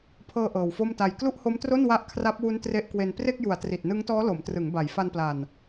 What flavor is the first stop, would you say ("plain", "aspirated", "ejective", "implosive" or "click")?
aspirated